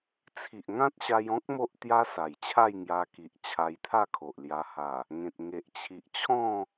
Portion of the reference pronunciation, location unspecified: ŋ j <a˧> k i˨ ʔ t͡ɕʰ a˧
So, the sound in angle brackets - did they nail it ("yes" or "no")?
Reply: yes